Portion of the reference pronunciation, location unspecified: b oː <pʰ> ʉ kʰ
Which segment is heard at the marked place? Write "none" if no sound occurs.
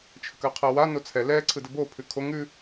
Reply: pʰ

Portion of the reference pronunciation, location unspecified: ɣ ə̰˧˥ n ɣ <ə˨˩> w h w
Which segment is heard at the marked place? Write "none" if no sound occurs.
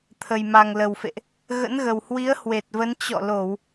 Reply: ə˨˩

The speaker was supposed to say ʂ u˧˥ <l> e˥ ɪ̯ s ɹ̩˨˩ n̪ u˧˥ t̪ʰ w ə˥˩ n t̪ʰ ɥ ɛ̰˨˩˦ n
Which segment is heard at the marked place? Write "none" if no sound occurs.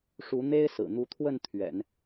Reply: n̪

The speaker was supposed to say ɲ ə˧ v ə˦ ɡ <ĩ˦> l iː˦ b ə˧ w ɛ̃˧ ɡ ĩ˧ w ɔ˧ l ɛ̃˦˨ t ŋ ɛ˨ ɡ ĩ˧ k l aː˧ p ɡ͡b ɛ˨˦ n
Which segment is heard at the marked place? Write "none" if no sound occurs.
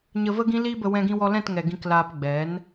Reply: ĩ˦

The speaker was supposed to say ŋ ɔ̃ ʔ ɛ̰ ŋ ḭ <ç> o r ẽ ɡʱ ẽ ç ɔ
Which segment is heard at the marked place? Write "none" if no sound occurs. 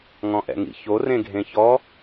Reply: ç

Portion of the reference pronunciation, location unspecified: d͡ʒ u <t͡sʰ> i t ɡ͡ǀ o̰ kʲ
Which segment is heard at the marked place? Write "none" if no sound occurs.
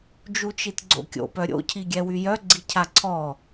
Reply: t͡ʃ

